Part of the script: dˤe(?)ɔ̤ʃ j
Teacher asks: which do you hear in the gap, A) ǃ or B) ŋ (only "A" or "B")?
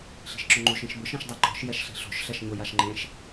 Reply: A